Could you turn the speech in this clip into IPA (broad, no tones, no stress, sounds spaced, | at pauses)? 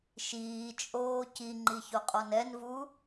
ʃ iː t͡ʃʼ oː c i ŋ͡ǃ i ç o qʼ ɔ n ɛ n v u